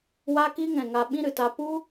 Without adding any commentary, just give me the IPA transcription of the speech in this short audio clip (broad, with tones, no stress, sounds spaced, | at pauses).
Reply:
w a˧ k i˧ ŋ ɛ̃˨ ŋ a˧ ɓ ĩ˦ ɾ ɨ˨ t a˧ p u˦